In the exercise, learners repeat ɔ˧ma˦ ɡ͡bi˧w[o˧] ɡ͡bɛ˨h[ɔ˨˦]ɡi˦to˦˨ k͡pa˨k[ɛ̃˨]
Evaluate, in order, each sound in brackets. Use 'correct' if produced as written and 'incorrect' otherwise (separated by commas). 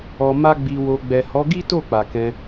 correct, correct, incorrect